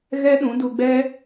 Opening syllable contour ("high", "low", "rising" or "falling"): high